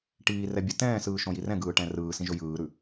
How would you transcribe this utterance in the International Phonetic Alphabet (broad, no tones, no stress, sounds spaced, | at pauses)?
ʈ iː r ɛ bʲ ɯ t ɛ̃ː s ɯː ʃ õ j i r ɛ̃ ɡ ɯː ʈ ɛ̃ r ɯː s ĩ ʒ ɵ j ɯː ɾ ʉ